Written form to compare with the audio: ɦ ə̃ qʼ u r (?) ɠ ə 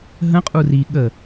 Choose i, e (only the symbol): i